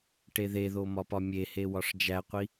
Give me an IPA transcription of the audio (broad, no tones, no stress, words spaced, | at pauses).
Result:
ʈeðeðo mɒpɒmʲehe wɒʂd͡ʒæqʷi